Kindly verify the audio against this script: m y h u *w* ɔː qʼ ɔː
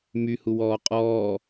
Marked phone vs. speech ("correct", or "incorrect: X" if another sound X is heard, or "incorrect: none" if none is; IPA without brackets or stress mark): correct